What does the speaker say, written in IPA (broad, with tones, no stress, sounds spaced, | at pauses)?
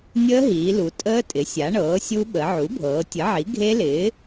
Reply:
nʲ əː˦˥ ɦ iː˩˧ l u˩˧ tʼ əː˦˥ tʼ ɪ˩˥ sʲ a˩˥ ɳ ɤː˩˥ sʲ u˦˥ ɓ ə˩˧ ʕ u˩˥ bʱ ɤː˩˧ tʲ ə˩˥ ʕ i˩˥ ɡʱ e˦˥ l ɪː˩˥